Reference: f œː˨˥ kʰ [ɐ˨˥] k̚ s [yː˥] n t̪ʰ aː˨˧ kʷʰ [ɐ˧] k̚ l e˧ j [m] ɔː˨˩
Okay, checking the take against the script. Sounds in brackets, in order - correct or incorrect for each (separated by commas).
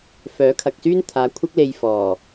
incorrect, correct, incorrect, incorrect